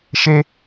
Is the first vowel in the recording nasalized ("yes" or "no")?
no